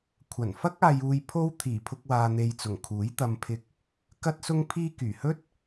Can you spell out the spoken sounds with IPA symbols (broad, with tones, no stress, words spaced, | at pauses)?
kʷʰɐ˨˩nfɐ˥k̚aː˧juː˧j pʰo˥w t̪ʰiː˨˩pʰʊ˧k̚waː˨ n̪e˨jt͡sʊ˨˩ŋ kʰuː˨˥jt̪ɐ˧mpʰɪ˧k̚ | kɐ˥t̚sʊ˥ŋpʰiː˥ kyː˨˩hɵ˥t̚